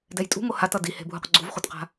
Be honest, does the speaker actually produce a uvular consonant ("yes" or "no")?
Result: yes